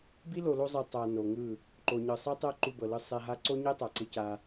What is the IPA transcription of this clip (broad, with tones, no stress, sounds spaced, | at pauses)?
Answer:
b i˦ l o˨ l o˧ zˤ i˨ tˤ a˨ n o˨ ŋ ɯ˦˨ | ǃ o˨ ɲ ɯ˨ sˤ i˦ tˤ ɛ˦ ǃ u˧ b ɤ˨ l ɯ˧ sˤ ɛ˧ ɦ a˦ ǀ o˦ ɲ e˦ tˤ a˨ ǀ ɯ˧ c a˧